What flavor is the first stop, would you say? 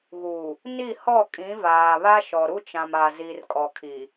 ejective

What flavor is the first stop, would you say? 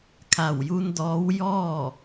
aspirated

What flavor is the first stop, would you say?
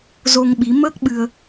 implosive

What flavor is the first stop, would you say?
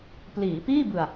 plain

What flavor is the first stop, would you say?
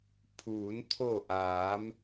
aspirated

